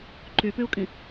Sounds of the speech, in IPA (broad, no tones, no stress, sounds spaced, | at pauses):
ǃ y p y u̯ kʼ ĩ